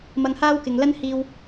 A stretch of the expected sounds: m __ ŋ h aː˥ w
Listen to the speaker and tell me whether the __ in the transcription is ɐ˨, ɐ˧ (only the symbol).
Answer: ɐ˧